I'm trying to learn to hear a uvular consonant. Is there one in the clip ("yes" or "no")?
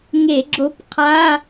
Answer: yes